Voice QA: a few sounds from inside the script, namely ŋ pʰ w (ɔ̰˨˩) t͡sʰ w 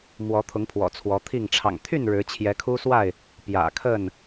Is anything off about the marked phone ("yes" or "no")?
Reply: no